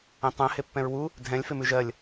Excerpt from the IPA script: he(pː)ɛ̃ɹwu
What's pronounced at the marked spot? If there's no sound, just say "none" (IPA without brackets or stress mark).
pː